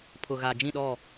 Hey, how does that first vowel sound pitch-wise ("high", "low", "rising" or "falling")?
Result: low